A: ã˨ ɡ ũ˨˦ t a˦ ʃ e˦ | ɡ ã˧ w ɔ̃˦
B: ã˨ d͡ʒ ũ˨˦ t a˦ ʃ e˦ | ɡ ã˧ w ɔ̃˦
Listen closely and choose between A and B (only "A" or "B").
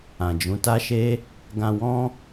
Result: B